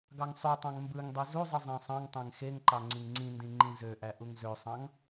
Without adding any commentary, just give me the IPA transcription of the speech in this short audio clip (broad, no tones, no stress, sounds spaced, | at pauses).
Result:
ɡ ɑ ŋ sˤ y tˤ ɑ̃ ŋ m b ɯ ŋ dˤ i z u zˤ ɯ zˤ æ̃ sˤ ɑ̃ ŋ tˤ æ̃ ŋ x e ŋ ǃ ɑ ŋ͡ǀ ĩ ŋ ŋ͡ǀ ĩ n d ĩ ŋ͡ǃ ĩ z ø ʔ æ ʔ u ŋ z ø sˤ ɑ̃ ŋ